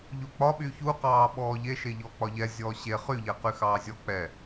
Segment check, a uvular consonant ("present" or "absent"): present